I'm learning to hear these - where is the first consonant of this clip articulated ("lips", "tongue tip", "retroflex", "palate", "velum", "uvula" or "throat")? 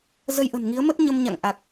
tongue tip